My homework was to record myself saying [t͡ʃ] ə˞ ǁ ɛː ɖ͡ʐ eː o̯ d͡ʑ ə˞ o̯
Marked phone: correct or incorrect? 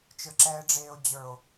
correct